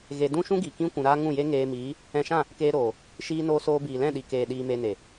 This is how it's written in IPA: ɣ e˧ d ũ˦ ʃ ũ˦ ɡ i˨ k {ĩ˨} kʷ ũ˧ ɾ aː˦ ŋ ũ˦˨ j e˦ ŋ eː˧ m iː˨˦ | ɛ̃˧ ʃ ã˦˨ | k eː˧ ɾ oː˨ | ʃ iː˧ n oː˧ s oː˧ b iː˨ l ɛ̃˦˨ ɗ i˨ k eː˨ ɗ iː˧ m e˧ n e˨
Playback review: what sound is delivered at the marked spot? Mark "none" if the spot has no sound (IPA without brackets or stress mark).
ĩ˦